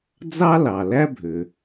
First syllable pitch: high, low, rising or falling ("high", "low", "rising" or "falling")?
high